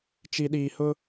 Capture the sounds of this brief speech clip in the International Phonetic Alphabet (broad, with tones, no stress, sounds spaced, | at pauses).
t͡ʃ i˨ ɗ iː˨ h ʊ˦